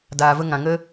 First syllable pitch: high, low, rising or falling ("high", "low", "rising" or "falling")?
low